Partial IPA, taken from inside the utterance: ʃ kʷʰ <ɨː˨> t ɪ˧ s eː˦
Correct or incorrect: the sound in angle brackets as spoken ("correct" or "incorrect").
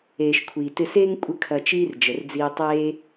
incorrect